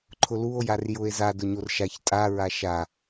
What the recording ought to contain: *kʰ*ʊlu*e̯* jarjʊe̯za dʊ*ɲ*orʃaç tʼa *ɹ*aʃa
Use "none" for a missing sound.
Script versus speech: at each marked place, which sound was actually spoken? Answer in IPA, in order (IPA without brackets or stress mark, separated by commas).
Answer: ǃʰ, o̯, ɲ, ɹ